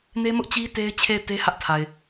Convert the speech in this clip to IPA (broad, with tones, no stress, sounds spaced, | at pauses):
n e˦ m ʊ˦ ʔ t͡ɕ i˦ t e˦ ɪ̯ t͡ɕʰ e˦˨ ɪ̯ t e˦ h ä˦ ʔ tʰ a˨ ɪ̯